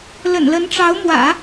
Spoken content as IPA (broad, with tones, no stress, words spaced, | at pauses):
lə̰˨˩nlə˧˥nʈ͡ʂɑ˧˥ʊ̯mwä̰˨˩˦